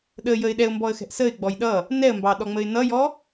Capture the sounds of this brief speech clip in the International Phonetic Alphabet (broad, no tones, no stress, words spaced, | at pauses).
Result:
ɗəjəɪ̯ ɗɛʊ̯mbɔə̯xɛ̤ʔ səɪ̯ɡ͡bɔj ɗʌ | nɛə̯mbɑɗɔŋ͡məɪ̯ nʌjɔ